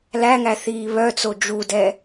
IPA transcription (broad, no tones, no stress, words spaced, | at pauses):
læŋæ θiːβœt͡so d͡ʒudɛ